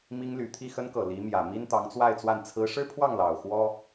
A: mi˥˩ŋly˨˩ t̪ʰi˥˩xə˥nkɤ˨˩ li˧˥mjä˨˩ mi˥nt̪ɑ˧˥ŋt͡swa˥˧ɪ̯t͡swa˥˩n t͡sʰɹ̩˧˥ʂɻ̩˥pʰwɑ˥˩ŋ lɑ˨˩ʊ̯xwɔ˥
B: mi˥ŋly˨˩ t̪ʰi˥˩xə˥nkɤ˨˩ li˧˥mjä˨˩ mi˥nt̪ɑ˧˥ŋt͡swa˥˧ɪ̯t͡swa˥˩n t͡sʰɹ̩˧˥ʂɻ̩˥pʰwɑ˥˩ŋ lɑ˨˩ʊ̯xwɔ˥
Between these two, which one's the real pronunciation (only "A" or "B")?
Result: B